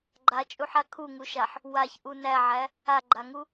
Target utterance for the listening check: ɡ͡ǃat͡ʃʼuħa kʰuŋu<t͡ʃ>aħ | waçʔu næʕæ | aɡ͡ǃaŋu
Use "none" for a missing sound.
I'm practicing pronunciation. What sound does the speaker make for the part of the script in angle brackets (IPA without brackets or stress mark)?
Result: ʃ